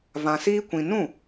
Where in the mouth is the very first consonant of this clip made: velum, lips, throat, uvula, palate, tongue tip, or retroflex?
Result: lips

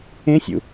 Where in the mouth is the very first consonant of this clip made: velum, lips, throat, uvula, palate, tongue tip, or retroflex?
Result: tongue tip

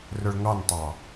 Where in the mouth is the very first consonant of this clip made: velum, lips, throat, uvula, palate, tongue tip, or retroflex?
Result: tongue tip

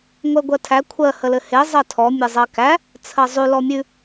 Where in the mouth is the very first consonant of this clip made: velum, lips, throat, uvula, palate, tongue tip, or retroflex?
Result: velum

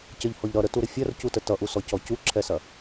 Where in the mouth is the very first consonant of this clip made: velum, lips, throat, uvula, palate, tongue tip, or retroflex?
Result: palate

